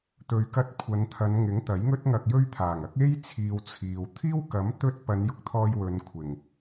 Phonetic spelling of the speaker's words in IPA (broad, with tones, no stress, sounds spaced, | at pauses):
t̪ ɵ˨ ɥ k ɐ˧ t̚ kʷʰ ɐ˨˧ n t̪ʰ ɐ˨˧ n ŋ ɪ˨˥ ŋ t̪ ɐ˨˥ j ŋ ɵ˥ t̚ ŋ ɐ˧ k̚ j ɵ˥ ɥ t̪ʰ aː˨˩ ŋ ɐ˥ k̚ e˥ j t͡sʰ iː˨ w t͡sʰ iː˨ w t̪ʰ iː˥ w k ɐ˨˥ m t̪ ɵ˧ t̚ p ɐ˨˧ n j ʊ˧ k̚ t̪ʰ ɔː˧ j w ɵ˨˧ n kʷʰ ɪ˨˩ ŋ